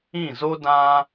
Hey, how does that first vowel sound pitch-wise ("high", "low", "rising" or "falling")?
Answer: falling